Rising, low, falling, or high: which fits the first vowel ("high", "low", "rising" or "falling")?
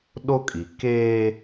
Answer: high